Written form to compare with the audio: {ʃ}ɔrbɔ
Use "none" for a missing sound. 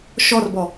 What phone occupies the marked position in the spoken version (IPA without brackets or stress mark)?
ʃ